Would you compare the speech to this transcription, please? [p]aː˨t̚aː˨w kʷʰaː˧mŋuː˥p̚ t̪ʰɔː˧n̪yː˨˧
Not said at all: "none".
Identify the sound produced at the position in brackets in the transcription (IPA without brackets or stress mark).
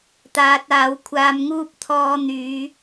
t̪